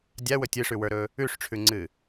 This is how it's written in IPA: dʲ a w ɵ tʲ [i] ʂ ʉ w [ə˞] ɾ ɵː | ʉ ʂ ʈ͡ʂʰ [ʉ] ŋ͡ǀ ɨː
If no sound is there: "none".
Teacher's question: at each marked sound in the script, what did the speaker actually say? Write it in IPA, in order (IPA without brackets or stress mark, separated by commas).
ɨ, ə˞, ʉ